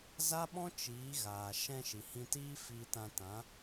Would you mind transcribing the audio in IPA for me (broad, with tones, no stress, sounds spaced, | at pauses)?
z a˦ ɓ ɔ̃˦ t͡ʃ iː˨˦ ɣ aː˨ ʃ ɛ̃˧ ʃ i˨ h ĩ˧ t iː˦ f iː˧ t ã˧ t ã˨˦